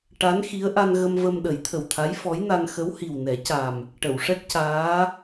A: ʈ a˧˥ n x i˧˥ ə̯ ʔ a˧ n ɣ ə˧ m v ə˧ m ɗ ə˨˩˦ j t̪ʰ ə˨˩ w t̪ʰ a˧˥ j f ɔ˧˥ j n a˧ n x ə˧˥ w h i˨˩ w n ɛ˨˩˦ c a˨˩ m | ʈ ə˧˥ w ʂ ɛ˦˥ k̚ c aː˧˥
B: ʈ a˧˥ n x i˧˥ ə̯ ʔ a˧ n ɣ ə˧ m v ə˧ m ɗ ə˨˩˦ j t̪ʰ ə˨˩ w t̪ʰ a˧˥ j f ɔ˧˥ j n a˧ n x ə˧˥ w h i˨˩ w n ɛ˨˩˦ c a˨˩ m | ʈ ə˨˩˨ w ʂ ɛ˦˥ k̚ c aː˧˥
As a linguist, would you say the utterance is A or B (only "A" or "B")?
B